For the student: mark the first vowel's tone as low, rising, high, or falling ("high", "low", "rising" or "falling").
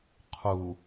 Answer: low